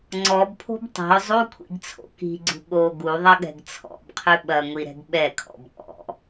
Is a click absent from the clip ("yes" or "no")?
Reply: no